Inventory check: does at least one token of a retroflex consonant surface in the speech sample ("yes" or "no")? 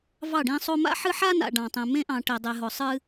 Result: yes